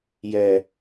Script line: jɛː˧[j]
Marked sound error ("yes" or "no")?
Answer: yes